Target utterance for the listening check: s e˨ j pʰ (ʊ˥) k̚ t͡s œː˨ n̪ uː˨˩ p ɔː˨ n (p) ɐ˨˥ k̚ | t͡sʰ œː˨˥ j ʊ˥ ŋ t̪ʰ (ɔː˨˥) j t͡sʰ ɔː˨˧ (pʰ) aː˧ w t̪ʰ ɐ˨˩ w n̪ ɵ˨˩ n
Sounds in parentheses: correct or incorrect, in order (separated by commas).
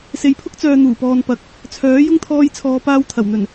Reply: correct, correct, incorrect, incorrect